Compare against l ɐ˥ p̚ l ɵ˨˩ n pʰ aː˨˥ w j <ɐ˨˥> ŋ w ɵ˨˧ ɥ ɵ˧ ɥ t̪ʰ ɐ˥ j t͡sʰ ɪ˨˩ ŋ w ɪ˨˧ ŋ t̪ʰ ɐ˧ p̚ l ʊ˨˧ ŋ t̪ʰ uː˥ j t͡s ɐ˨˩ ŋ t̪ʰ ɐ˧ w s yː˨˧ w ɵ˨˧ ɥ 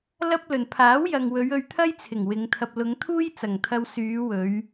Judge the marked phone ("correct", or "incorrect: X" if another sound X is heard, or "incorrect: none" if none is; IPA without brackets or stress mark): incorrect: ɐ˨